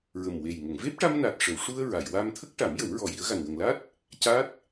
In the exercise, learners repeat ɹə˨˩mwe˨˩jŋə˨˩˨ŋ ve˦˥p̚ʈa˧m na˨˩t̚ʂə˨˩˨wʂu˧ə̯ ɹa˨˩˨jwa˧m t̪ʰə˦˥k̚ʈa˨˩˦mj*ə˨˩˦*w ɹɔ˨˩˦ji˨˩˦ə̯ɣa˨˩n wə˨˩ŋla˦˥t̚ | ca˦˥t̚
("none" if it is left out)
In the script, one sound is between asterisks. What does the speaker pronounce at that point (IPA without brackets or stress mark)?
ə˨˩˦